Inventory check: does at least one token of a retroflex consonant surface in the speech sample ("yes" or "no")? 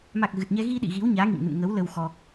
no